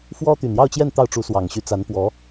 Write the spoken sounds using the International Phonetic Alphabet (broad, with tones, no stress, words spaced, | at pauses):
fwɔ˥t̪y˨˩njɑ˥˧ʊ̯t͡ɕjɛ˥˧n t̪ɑ˥˩ʊ̯ʈ͡ʂu˧˥swɑ˨˩ŋɕy˧˥ t͡sa˧˥npwɔ˧˥